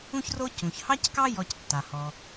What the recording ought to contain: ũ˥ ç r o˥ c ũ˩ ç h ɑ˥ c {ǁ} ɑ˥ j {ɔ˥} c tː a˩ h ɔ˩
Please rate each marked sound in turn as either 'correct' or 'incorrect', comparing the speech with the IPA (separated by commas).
incorrect, incorrect